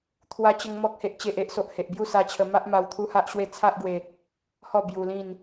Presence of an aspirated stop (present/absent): present